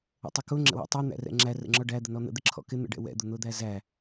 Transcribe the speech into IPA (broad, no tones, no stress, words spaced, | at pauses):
ə̰tˤʊkʊ ŋ͡ǁə̰wæ̰tˤɛ n̪æ̰rɛ̰ŋ͡ǁæ rə̰ŋ͡ǁɔɖæ d̪ənɔn̪ə̰ d̪ɪǁʰɔ̰kɪ n̪ə̰ɖɛ̰wɛ̰ d̪ʊn̪ʊd̪æzæ